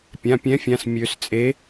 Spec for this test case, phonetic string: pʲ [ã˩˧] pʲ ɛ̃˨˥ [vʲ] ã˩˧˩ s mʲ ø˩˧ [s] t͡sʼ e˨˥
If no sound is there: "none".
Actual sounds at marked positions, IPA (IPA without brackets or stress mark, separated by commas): ã˩˧˩, fʲ, s